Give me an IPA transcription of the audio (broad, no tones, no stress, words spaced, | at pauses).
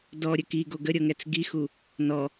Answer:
dɔɾʲə kiɡo ɡəɾʲɤŋɛt͡s ɡixu | nɔ